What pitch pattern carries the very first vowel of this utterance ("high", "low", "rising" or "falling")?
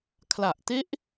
low